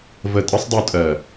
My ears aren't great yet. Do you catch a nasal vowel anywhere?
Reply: no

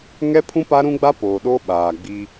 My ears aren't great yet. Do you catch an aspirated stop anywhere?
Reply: yes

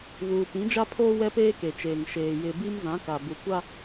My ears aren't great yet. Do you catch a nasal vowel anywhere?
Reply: yes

